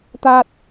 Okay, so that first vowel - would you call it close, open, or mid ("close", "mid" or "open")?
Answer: open